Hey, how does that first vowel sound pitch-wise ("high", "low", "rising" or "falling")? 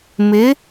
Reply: rising